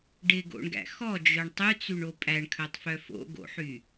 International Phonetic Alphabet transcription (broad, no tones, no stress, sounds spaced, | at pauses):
ɖ ɪ ɡ o̰ ɳ ɡ æ̰ x ɔ d͡ʒ œ ɳ tˤ y t͡s y ɳ o pʼ æ ɳ kʰ œ tˤ f œ f o̰ ɡ o̰ ħ y